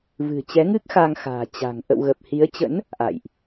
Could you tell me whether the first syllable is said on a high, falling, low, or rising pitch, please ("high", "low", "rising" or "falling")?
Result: low